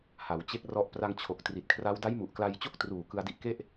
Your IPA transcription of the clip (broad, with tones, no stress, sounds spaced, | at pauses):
h a˩˦ w t͡ɕ e˦˥ k̚ r ɔ˦˥ ʔ p r a˧ ŋ t͡ɕʰ o˨˩ k̚ t r i˨˩ t̚ kʰ r a˦˥ w d a˦˥ j m u˨˩ ʔ k l a˧ j t͡ɕ o˥˩ k̚ t r uː˨˩ k ɯ˧ a̯ d i˦˥ ʔ k e˥˩ ʔ